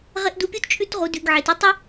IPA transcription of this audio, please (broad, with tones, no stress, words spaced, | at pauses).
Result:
ʁe˥ʔdu˦ pʲu˥tt͡ʃʼʉ˥tʁu˨ dʉ˨ɡʕe˩t u˦tˤʉ˥